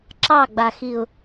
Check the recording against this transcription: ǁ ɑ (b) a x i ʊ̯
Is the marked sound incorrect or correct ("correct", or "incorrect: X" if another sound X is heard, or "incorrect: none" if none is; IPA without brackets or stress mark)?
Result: incorrect: ɡ͡b